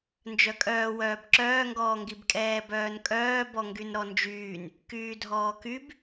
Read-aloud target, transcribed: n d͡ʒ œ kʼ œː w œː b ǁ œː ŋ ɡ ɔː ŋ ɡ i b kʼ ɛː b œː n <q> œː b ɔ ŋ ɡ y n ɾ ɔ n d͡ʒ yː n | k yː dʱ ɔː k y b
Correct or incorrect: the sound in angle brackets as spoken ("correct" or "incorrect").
incorrect